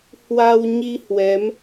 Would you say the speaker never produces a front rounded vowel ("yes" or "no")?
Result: yes